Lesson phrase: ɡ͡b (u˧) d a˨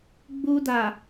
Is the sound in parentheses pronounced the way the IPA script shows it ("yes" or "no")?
yes